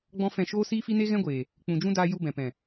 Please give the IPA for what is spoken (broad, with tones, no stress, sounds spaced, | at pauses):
ɡ͡b ɔ̃˦ f ɛ̃˦˨ ʃ oː˦ s iː˦ f i˦ n e˦ ɣ ɛ̃˦ ɡʷ eː˨ | k͡p ũ˨ d͡ʒ ũ˦ d aː˧ j u˧ b ɛ̃˨ p ɛ̃˨